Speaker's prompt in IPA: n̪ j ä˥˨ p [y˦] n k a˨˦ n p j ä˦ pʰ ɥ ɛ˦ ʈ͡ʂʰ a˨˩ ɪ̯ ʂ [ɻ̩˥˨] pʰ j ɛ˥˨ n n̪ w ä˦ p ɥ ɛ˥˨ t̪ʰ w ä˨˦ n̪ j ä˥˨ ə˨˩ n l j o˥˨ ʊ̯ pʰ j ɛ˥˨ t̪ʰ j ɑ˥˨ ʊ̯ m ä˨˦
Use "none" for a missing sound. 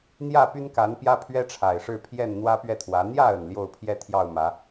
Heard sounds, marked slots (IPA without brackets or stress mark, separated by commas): y˦, ɻ̩˥˨